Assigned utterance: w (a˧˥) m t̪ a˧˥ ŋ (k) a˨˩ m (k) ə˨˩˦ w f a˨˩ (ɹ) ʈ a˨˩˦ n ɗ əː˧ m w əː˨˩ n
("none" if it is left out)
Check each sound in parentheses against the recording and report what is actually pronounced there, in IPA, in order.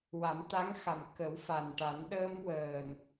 a˨˩˦, x, k, n

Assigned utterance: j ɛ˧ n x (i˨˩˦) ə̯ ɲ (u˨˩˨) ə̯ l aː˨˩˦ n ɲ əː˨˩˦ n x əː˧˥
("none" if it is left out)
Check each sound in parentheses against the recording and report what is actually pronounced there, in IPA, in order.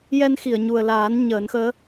i˨˩˨, u˨˩

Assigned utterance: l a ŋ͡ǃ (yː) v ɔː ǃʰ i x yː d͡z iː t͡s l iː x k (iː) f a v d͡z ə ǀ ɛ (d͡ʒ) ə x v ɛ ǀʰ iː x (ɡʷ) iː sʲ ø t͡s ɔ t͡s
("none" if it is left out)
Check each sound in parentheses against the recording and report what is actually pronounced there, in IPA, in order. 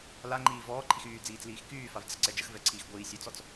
iː, yː, d͡ʒ, ɡʷ

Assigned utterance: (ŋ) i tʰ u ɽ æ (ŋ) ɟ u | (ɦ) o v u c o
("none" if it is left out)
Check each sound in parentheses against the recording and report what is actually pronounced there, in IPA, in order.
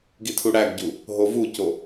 ɡ, ɡ, ɦ

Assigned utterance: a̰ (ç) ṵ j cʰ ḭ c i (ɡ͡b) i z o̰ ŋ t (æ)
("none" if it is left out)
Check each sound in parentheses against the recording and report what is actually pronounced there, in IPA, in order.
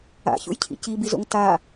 ç, b, a

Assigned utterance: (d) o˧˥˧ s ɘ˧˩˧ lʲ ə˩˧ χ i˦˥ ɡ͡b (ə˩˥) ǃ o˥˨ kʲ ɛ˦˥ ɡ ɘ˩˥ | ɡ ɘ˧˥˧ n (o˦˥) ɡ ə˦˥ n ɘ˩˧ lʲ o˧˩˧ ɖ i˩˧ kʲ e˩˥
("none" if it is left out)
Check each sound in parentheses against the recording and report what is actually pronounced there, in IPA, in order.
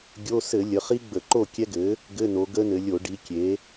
ɡʲ, ə˧˩˧, o˩˧

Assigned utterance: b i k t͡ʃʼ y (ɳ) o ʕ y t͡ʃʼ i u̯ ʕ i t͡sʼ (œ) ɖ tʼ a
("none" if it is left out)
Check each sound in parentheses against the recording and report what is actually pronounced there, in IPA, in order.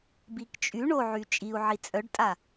ɳ, œ

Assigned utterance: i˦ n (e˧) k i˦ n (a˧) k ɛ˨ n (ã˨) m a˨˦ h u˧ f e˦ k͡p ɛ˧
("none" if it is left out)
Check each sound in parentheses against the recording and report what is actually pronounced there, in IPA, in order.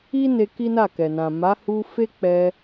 e˧, a˦˨, ã˨

